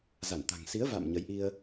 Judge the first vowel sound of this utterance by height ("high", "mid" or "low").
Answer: low